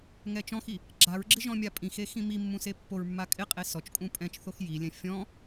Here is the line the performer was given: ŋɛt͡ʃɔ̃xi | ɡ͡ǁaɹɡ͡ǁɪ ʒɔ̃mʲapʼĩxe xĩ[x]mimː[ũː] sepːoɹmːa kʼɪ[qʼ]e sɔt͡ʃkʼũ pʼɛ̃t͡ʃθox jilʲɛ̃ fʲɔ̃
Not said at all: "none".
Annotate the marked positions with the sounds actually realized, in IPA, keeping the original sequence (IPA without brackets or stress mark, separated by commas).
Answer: none, ũ, qʼ